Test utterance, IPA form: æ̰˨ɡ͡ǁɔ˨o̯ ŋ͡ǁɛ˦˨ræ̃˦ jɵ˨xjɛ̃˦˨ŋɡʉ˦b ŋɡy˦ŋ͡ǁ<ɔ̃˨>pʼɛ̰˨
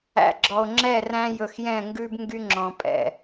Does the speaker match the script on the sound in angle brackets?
yes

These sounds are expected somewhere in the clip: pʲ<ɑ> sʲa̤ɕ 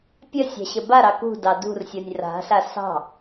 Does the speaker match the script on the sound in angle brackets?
no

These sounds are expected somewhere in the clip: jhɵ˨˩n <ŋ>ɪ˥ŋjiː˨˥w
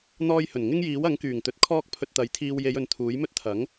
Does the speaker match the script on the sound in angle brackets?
yes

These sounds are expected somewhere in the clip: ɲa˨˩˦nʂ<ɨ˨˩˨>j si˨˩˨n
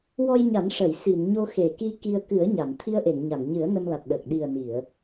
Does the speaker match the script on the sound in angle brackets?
no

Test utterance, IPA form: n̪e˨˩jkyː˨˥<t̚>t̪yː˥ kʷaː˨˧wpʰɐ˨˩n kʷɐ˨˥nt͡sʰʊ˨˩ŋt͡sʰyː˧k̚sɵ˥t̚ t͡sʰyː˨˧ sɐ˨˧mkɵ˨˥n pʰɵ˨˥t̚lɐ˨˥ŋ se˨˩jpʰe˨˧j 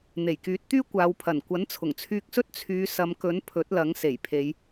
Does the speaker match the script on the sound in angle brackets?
yes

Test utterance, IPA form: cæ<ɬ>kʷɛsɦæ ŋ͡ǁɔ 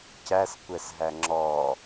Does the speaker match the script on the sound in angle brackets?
no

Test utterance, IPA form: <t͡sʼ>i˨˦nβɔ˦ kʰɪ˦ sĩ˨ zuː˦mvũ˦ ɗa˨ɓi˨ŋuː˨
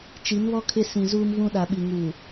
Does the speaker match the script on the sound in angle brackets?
no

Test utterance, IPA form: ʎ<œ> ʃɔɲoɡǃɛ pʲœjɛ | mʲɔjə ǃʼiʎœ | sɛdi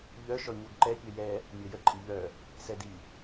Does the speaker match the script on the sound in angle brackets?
yes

